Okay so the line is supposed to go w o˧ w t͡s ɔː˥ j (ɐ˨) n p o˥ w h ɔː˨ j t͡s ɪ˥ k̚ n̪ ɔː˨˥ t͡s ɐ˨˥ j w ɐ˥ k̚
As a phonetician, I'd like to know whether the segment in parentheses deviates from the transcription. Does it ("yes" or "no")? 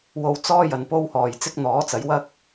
yes